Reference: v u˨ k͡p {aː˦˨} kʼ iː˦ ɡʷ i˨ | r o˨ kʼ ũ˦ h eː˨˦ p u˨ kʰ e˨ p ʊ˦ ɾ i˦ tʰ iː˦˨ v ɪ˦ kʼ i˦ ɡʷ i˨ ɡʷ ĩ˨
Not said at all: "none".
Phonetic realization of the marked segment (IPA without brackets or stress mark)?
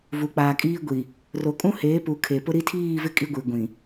aː˨